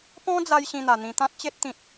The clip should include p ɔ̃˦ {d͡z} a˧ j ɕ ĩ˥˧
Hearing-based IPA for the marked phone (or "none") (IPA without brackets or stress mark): d͡z